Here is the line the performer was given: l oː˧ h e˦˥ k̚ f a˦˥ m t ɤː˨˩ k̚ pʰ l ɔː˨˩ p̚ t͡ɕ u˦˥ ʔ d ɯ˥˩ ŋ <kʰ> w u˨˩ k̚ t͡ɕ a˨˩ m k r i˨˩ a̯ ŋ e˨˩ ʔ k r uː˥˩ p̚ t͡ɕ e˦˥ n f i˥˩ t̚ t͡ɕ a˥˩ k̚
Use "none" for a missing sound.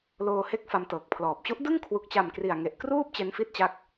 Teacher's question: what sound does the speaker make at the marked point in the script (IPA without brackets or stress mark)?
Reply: kʰ